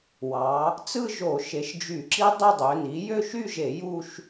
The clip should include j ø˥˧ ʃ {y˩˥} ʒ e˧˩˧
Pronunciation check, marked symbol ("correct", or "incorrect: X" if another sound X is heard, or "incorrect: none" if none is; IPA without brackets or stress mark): incorrect: y˥˧